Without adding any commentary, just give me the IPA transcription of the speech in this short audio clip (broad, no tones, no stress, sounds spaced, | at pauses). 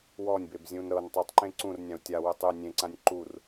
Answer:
w ɔ nʲ b e b zʲ ũ n ɾ ɤ n tˤ ɯ tˤ ǃ ẽ ǀ ũ r nʲ ã u̯ tʲ a w ɯ tˤ ɯ nʲ ẽ ǀ ã nʲ ǃ u r